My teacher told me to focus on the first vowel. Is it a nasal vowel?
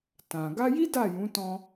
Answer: yes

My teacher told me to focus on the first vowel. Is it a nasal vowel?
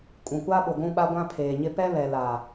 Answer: yes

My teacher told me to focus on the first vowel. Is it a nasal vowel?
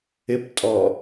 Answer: no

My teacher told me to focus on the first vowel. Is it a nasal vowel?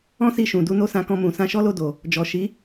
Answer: yes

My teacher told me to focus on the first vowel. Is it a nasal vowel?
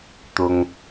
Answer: no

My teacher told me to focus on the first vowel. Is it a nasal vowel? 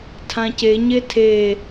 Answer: yes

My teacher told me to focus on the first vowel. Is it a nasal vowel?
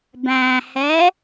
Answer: yes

